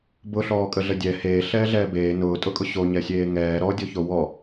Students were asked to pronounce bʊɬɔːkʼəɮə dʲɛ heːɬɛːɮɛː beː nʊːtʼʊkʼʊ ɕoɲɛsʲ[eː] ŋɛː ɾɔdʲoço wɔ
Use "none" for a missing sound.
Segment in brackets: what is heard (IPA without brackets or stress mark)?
eː